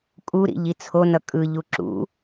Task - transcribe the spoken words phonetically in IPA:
kʼuɾḭ ʎit͡sʰonʌ kʼɯʎu ǁṵ

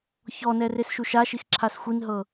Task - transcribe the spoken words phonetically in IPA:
çɔnɛ resʃuʃaʃix ǁʰasxʷinɦɤ

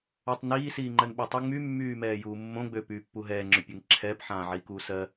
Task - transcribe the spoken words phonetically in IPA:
otˤniː siːŋ͡ǃɜnɓɛtˤy ŋ͡my mːyːmɛːjuːmːõ ɡ͡bø pyːpːuɦɛː ŋ͡ǁøpʲɜŋǁʰɛːp ħãːʕiːkuːsɜ

